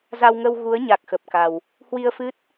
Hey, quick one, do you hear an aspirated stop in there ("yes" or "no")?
no